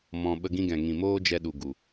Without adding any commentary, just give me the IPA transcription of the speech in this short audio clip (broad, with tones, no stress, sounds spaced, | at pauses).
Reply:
m ɔ̃˧ ɓ ə˧ ɡ ĩ˧ ɡ ɛ̃˨ ŋ ĩ˨ m oː˦ d͡ʒ ɛ˧ ɗ u˨ ɡ u˨